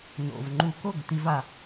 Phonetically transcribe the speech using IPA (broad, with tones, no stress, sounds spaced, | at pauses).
n o̰˩ v ŋ͡ǃ u˧˩˧ k o˥˩ ɡ t̪ i˧˥ v a˧˩˧